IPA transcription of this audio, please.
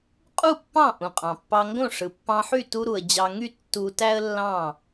qʼ u˥˧ pː ɑ̃˥˩ ʔ ũ˩ qʼ ɑ̃˩ pː ɑ˧ ŋ ɡ õ˥˩ ʂ ɯ˩ pː ɑ̃˧ ħ y˥˩ t u˧ ɾ u˩ ə̯ d͡ʑ ɑ˧ ŋ y˥˧ tː u˧ t æ˥ ə̯ lː ɑ̃˥˩

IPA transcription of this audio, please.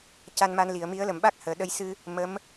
c a˧ n m a˧ n l i˨˩˨ ə̯ m i˧˥ ə̯ l ə˨˩˨ m ɓ a˦˥ k̚ h əː˨˩˨ ɗ ə˧ j s ɨ˧ | m ə˧˥ m

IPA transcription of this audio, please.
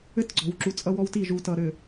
ɘ˦ t ɡ͡ǀ ɔ̤˨ w ǁ u˨ t͡sʼ ʌ˦ w ɔ˦ w t i˦˨ ʒ u˨ t ʌ˨ ɾ ɘ˨

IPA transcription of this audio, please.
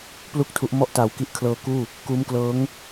p l u˥˩ k̚ tʰ u˦˥ ʔ m ɔ˥˩ ʔ t aː˨˩ w k i˦˥ ʔ kʰ l ɤː˧ k uː˥˩ | k uː˦˥ m k l ɤː˦˥ ŋ

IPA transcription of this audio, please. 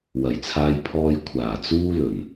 w ɐ˨˩ j t͡sʰ aː˧ j pʰ ɔː˧ j kʷʰ aː˨˩ t͡s uː˥ l ɵ˨˩ n

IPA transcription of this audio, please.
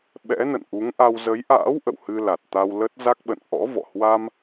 ɓ ɛ̰˧˥ n ə̰˧˨ n ʔ u˨˦ ŋ ʔ a˧ w z ə˨˦ j ʔ a̰ː˧˥ w ʔ ə̰˧˨ w h ɨ˧ l a˨˩ t̚ t̪ a˧ w l ə˦˥ t̚ z a˦˥ k̚ ɓ ə̰˧˨ n ʔ ɔ̰˧˥ v ɔ̰˧˨ h w a˧ m

